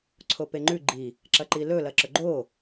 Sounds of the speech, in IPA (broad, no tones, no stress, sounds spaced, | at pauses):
ǀʰ o p e ŋ͡ǃ ʉ ɡ͡ǃ i | ǁ ɐ ǃ i l ɵ l ɐ ǁ ɵ ɡ͡ǃ o